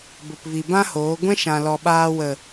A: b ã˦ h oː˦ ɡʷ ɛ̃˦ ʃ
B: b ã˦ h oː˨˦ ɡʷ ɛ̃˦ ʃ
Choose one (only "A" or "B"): B